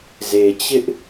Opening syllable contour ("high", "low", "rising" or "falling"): low